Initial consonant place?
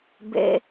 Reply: labial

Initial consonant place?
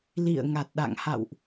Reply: alveolar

